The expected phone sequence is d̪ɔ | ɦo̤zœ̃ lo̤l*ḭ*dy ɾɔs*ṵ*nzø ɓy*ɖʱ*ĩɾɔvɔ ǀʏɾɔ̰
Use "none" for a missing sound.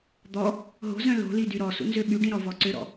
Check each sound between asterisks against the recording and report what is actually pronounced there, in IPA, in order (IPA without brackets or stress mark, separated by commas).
i, ṵ, ɖ